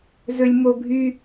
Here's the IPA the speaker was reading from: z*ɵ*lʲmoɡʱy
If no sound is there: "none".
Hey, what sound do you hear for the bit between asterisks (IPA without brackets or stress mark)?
ɵ